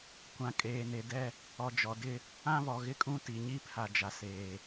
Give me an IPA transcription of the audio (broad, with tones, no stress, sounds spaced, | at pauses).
kʷ ã˨ kʼ eː˨ n e˨ d ɛ˦ | ɔ˨ d͡ʒ ɔ˨ d ɪ˦ | ã˦ β ɔ˨ ɣ ɪ˦ kʼ ũ˦ t i˨ ɲ i˦ pʰ a˨ d͡ʒ a˨ s eː˨